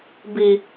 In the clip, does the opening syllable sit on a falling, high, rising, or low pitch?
low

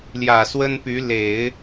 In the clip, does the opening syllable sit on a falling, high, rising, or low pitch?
low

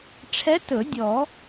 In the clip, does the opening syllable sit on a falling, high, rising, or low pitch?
rising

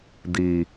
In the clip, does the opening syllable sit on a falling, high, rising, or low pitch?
low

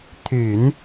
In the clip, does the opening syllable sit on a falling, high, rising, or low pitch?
low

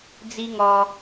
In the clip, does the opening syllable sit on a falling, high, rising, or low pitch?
high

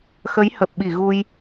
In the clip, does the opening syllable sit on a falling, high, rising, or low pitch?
rising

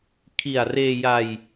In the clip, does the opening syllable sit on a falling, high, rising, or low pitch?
low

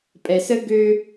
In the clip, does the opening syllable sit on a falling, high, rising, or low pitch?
low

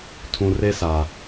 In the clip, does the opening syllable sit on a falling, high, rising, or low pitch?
low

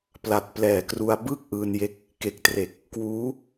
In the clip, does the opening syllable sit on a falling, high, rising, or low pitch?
low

